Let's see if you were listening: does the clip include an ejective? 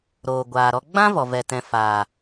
no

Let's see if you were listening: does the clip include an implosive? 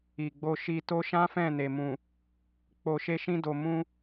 no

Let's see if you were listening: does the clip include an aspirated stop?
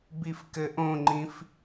no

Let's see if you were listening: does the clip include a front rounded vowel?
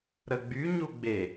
yes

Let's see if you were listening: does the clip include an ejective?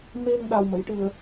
no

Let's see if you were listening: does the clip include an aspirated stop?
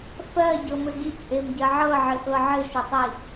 no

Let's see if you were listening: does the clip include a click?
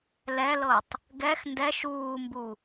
no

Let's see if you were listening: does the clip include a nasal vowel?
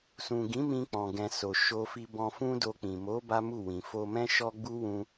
yes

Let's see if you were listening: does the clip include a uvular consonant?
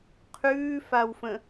yes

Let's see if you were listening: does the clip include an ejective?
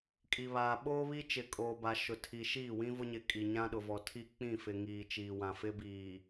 yes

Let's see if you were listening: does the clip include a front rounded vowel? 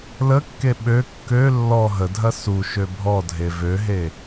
yes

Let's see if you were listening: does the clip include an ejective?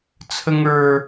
no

